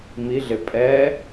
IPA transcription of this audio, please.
m i ɮ ɪ pʼ ɛ

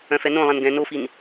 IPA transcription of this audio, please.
œ̃ f ɛ n õ lˠ ɛ̃ n ɡ ɛ̃ n o f i n

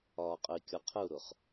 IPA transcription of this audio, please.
ɒː qʼ ə i̯ kʲ ɒ qʰ ə u̯ ɾ ʊ χ

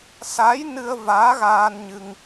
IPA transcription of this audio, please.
s a˧˥ j n ɨ˧ ə̯ v aː˧˥ ɣ aː˧ n ɲ ɨ˧ ŋ

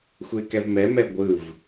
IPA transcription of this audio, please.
xʷ e k ɛ v m ɛ m ɛ ɡʷ ɯ v

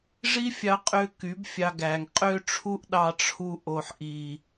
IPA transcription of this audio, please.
ʐ i˦ fʲ ɑ˧ qʼ ø˧ k y˨˦ b fʲ ɑ˧ ɡ æ˨ ŋ qʼ ø˦ ʈ͡ʂʰ u˦ ʔ ɗ ɑ˧ ʈ͡ʂʰ u˧ ʔ o˨ ħ ʔ i˨

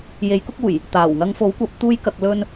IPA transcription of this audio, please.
j e˨˥ j k ʊ˥ k̚ uː˨˩ j | t̪ aː˨˩ w ŋ ɐ˧ ŋ f o˨˥ w kʷ ɐ˨˥ p̚ t̪ uː˧ j k ɐ˨ k̚ l ɵ˧ n

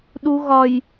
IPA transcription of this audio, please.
ɗ u ɣ ɒ j

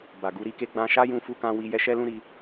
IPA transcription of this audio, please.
b a˨ ɡ u˨˦ ɾ i˧ k e˦ ɡ͡b ã˧ ʃ a˦ j ũ˧ f u˦ k ã˦ w i˦ j ɛ˧ ʃ ɛ˦ l ũ˦ ɾ i˧

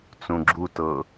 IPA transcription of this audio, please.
t͡s ũ ɡ͡ǁ u t ɤ

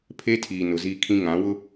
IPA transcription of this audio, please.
pʰ e˦ tʰ iː˨ n ʊ˨ z iː˦ kʰ ĩ˦ ŋ ã˨˦ w ʊ˦

